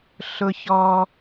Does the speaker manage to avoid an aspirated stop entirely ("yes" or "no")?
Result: yes